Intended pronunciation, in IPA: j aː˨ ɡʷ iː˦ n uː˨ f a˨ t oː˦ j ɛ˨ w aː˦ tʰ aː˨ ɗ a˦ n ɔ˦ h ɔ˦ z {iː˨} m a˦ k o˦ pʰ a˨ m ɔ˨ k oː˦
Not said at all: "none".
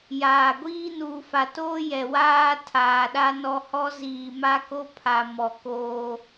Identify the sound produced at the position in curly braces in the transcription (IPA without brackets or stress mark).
iː˨